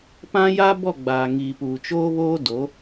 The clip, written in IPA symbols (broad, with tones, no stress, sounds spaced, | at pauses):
p ã˦ j aː˦ b ɔ˦˨ ɡ͡b aː˨ ŋ iː˨ p uː˨ t͡ʃ oː˦ β oː˦ d o˨˦